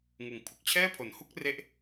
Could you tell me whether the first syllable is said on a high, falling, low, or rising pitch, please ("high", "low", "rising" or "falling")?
low